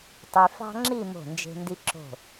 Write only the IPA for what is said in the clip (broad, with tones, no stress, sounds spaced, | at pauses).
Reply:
tˤ y˧ f ɑ̤˥ ŋ͡ǁ i˥˧ m o̤˧˩ n d͡ʒ e̤˧ n d i˧ ǁ o̤˧˩